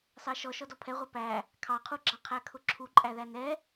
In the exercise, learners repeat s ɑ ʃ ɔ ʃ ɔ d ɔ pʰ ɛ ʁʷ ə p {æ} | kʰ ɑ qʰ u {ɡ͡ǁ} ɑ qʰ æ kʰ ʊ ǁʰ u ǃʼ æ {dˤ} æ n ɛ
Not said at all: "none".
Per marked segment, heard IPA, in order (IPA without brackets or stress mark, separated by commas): æ, ɡ͡ǁ, ð